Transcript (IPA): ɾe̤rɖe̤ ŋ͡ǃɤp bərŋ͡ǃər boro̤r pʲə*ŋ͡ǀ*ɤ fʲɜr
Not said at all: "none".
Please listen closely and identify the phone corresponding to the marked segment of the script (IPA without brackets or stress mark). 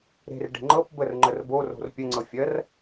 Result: ŋ͡ǀ